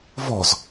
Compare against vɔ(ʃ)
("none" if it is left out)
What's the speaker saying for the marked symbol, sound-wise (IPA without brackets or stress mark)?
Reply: z